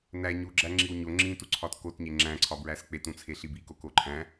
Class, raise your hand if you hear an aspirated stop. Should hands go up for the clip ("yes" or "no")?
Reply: yes